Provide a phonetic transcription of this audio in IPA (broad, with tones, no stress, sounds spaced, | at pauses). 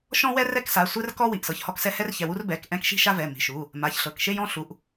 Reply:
ʃ ɔ̃˥ w ɛ˥ r ɛ˥ k s a˩˧˩ sʷ ɛ˥ r k ɔ˥ w i˩˧˩ ʔ s ɤ˩˧˩ ç h ɔ˥ k s ɛ˥ h ɛ˥ r ç ɛ˩˧˩ w u˥ r b ɛ˩˧˩ k ʔ ɛ̃˥ k ʃ i̤˥ ʃ a˥ v ɛ˩˧˩ m i̤˩˧˩ ʃ u˩˧˩ | m a˩˧˩ ç ɬ ɤ˩˧˩ k ʃ e˥ j ɔ̃˥ ɬ u˩˧˩ ʔ